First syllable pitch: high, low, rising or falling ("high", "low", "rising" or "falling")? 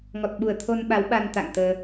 low